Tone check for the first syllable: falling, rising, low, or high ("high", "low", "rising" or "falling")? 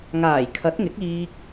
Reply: low